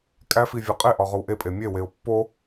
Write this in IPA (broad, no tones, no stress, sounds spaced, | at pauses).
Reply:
kʼ æ f i vʲ ɒ qʼ e ʔ ɒ ʁ o w ʔ e pʼ e mʲ e w e ʊ̯ pː o